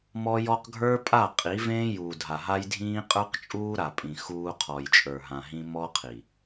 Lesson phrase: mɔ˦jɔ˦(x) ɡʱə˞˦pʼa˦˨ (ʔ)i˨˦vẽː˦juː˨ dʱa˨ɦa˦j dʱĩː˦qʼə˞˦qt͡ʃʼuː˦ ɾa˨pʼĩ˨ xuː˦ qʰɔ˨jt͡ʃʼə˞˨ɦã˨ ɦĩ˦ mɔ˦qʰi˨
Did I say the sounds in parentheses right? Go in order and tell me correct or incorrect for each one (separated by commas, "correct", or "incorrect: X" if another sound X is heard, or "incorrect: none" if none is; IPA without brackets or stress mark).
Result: incorrect: q, incorrect: qʼ